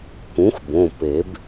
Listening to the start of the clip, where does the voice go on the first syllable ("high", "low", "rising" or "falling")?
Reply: rising